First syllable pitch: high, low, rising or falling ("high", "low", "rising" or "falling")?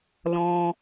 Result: high